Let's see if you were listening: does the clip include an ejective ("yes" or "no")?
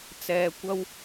no